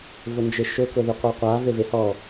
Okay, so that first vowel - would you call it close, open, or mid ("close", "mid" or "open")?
close